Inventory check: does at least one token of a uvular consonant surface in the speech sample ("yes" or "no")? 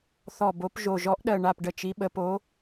no